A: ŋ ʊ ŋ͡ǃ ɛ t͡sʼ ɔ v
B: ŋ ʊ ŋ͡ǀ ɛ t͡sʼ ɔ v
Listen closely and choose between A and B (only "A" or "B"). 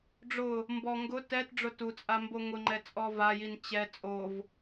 A